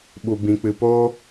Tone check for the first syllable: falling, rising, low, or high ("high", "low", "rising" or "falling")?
low